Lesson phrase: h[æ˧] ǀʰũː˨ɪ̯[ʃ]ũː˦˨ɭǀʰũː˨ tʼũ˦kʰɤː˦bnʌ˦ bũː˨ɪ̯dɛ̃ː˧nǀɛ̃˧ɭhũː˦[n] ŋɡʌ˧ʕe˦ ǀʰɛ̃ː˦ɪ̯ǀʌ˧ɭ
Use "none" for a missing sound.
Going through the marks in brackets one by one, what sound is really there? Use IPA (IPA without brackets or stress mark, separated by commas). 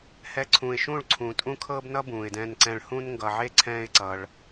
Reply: ɛ˧, ʃ, n